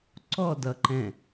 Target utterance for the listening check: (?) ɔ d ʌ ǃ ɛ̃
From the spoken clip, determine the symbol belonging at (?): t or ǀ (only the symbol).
ǀ